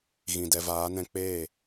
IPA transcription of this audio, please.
ɣĩ˨ dɛ˨vaː˨˦nɛ̃˧ k͡peː˦˨

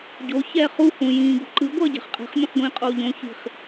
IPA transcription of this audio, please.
ɟo çɛːχu hũjĩːɡṳǃɯ ɡʷʌːɟɛ̤χqʼɛ̤χ mʲũχɡʷĩːqʼoːʎõ çi̤χ

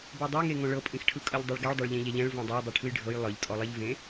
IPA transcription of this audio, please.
bodˤɛŋe ŋõɭɤpʼĩxʈʰɯ kʼɤʎdˤɛɭɡeɭdˤɛɭ ʎẽʎɛʎɛ̃ɭ võdˤej dˤiʈʰɯjɖʱɤj lˠɯʎtʼɔ lˠeʎvẽ

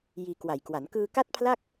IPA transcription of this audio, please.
jiː˧kwa˨˩jkwa˩˦n kɯː˧ka˥˩t̚pʰla˥˩k̚

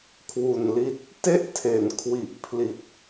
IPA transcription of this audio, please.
kʰwu˨˩nli˦˥t̚ | te˥˩ʔtʰe˩˦nkʰwi˨˩ʔpʰli˨˩t̚

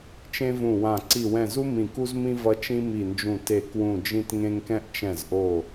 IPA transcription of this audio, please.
t͡ʃẽ˧vũ˨˩wã˨˩ ǀi˨˩wɛ̃˨˩zu˧ mĩ˨˩ku˧zmĩ˧ vʌ˧ t͡ʃĩ˧mi˨˩nd͡ʒũ˨˩ te˨˩kwũ˨˩ d͡ʒĩ˧tŋẽ˧ŋkɛ̃˧ʔ t͡ʃɛ̃˨˩zʔo˨˩

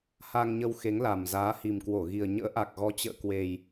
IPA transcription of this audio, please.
ha˧ŋɲə˧wxe˨˦ŋ la˨˩mzaː˨˦hi˨˩mkwo˧˩ ɣi˨˩ə̯ ɲə̰ː˧˥ ʔa˨˩k̚ɣɔ˨˦ t͡ɕə̰ː˧˨kwe˨˩j

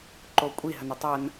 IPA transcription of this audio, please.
ǃokʷʼi ɦənətˤɐn

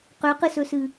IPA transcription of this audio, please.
qøqɨsɵsɨ

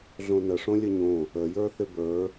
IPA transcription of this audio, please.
ɮõnə ʂõlʲəɲõ | əjə˞ θɪbə˞

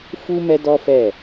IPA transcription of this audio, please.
fu˦ mɛ˦dɔ˦fɛ˦˨

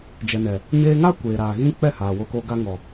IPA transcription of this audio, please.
d͡ʒɛ˨nɛ˨ | ɲeː˧ŋa˦ kʷeː˨ɾaː˨ ɣĩ˧ k͡pɛ˦˨haː˨ wo˧ko˧ ɡa˧ ŋɔ˨

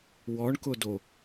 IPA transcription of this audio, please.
wɔɳkʊdo

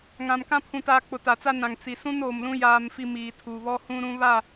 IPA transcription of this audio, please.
ŋã˨mkã˦ pʰũ˨taː˨ k͡pʊ˨ta˨t͡sa˦nã˨ŋ t͡si˨ sũ˦noː˨mlũ˦ jaː˦mfi˦ miː˨tʰuː˨βɔ˦hũ˦ ɾũ˦βa˦˨

